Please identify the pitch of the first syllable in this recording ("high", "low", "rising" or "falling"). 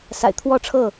low